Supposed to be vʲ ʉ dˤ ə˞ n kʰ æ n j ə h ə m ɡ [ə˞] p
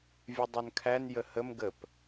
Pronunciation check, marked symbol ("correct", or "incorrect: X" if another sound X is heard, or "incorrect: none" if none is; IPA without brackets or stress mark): incorrect: ə